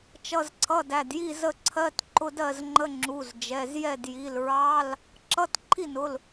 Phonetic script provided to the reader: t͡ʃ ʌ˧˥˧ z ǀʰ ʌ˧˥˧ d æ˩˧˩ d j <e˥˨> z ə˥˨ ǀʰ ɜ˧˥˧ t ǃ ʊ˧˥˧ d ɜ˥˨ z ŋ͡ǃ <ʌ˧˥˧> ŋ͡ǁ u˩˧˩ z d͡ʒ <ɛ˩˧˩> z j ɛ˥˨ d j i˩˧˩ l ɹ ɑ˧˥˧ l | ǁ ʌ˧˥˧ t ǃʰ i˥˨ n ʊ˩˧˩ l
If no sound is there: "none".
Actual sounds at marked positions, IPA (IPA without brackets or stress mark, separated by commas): i˥˨, ə˧˥˧, ɛ˩˧˩